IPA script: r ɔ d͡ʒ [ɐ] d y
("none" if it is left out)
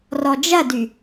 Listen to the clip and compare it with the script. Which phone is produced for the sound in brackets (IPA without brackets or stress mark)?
ɐ